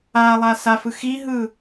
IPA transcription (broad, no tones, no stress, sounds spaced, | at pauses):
a lˠ a s a f ɯ x i ɦ ɯ